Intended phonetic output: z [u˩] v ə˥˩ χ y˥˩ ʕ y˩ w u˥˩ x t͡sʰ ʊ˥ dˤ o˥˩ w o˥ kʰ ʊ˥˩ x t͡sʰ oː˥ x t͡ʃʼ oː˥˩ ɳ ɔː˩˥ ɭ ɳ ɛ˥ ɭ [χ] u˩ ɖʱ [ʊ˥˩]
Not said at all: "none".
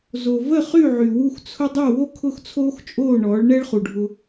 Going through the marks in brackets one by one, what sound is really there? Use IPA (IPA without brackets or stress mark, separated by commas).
o˩, χ, ʊ˧